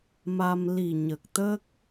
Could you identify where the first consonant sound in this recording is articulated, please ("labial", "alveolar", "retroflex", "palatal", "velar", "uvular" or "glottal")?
labial